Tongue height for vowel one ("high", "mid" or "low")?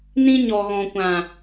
high